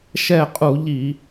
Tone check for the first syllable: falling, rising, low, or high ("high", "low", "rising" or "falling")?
falling